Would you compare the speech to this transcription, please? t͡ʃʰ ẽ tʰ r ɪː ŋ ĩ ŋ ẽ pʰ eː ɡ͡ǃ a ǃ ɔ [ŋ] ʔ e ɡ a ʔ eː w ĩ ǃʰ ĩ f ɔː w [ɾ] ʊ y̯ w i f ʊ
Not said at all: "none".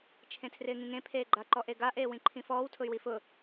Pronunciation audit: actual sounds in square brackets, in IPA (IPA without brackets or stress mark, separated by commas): none, tʰ